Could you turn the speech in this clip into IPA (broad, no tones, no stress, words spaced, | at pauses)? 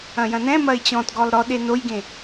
ɐ̃jɐ̃nɛ̃mɐɪ̯ t͡ɕɔ̃tɡɔlˠ ɾɔɗe nojɡẽ